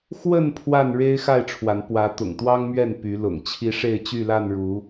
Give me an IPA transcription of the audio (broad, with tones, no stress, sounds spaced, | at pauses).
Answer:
x w ə˥˨ n pʰ w a˥˨ n ɻ e˦ ɪ̯ x a˥˨ ɪ̯ ʈ͡ʂʰ w a˨˦ n p w ä˨˦ t̪ ʊ̰˨˩ ŋ t̪ w ɑ˦ ŋ m ɥ ɛ˥˨ n p y˨˦ l ʊ̰˨˩ ŋ t͡ɕʰ i˦ ʂ e˥˨ ɪ̯ t͡ɕ y˥˨ l a˥˨ n ɻ u˨˦